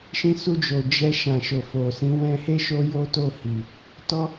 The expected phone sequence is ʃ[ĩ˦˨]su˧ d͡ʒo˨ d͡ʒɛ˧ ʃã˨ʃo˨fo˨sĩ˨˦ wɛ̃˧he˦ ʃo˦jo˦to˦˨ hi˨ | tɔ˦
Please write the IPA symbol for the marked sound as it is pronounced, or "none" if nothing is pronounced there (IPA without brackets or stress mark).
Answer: ĩ˧